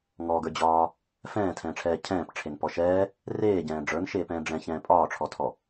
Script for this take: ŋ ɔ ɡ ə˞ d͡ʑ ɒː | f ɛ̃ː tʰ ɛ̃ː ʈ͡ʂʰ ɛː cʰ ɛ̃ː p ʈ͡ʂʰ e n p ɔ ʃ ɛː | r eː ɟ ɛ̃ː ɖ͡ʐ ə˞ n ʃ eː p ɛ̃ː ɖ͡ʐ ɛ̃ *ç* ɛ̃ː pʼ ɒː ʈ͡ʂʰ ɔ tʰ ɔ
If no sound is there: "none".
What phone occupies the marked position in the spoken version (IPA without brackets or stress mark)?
ç